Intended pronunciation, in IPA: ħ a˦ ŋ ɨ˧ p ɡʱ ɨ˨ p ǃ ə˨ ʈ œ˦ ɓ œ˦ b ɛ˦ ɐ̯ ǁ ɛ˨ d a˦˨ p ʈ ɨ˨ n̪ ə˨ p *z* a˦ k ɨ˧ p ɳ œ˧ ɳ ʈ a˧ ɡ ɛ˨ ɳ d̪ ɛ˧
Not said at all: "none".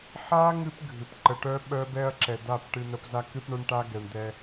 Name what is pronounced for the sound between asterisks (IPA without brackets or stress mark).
z